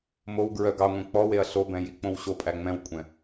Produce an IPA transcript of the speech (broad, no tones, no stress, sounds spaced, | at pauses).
m o w ɡ ɹ œ ɡ ɑ ŋʷ ɛ̃ k͡p ɔ w e ɐ̯ ɬ o b ɛ̃ j i k͡p õ w ɕ o pʼ æ ŋ͡m ɛ̃ w kʷʼ ɛ̃